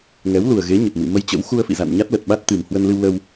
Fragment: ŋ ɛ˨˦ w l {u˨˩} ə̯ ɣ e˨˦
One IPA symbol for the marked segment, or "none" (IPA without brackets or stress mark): u˨˩